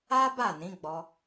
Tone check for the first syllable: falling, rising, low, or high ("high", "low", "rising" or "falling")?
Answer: high